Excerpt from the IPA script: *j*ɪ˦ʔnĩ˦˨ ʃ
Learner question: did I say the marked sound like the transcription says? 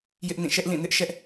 yes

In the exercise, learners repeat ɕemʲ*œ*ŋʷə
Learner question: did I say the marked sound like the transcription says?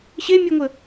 yes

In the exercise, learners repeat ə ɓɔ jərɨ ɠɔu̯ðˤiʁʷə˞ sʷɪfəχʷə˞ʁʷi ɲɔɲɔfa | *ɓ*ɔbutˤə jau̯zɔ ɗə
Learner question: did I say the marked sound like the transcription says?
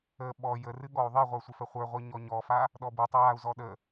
no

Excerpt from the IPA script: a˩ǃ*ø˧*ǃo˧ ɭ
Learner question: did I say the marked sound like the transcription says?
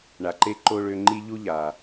no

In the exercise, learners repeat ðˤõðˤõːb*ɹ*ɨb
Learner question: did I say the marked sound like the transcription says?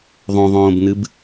no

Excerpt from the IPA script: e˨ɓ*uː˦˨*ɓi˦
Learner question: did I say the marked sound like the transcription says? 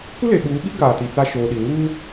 no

